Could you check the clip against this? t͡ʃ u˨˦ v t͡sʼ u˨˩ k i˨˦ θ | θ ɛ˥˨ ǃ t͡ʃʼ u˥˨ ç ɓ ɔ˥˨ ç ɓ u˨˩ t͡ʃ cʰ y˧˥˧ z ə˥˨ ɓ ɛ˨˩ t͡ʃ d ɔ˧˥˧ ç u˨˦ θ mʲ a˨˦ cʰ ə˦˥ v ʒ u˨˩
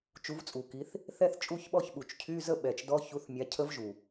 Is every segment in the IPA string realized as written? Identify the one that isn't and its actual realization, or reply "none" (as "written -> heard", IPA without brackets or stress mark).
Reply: ǃ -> θ